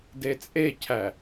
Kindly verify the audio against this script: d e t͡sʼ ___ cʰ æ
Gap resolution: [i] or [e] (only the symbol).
e